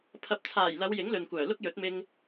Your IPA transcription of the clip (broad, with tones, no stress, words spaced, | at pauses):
pʰɐ˨p̚t͡sʰaː˨˩jlɐ˨˧w jɪ˨˥ŋlɵ˨nkʷœː˨˩ lʊ˥k̚jɵ˨˥t̚mɪ˧ŋ